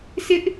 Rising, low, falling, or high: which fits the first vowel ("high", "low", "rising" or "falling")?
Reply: high